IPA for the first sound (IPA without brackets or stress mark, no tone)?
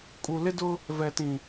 kʼ